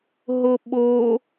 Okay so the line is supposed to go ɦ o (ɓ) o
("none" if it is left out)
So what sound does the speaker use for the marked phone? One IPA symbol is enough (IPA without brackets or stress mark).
ɓ